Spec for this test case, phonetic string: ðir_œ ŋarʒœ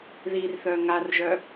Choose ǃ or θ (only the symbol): θ